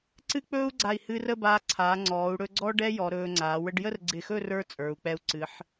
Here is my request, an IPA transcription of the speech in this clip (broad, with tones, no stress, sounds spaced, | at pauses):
ǀ ɨ˥˧ k͡p ɵː˥ u̯ ɡ͡ǀ a˧˩ i̯ h ɨː˧ r ə˥˧ b aː˧ ǀʰ aː˩˧ ŋ͡ǀ ɔː˩˧ u̯ ɽ ɵ˧ ɡ͡ǀ ɔ˥ ɖ ɛ˥ j ɔ˩˧ ɾ ɵː˧ ŋ͡ǀ a˩˧ w ə˧ ɖ j ə˥˧ r ɡ͡ǀ ɪ˧˩ x ɵ˥˧ r ə˞˥ t͡sʼ ə˞˩˧ u̯ k͡p ɛ˧ u̯ ǀ ɨ˩˧ ħ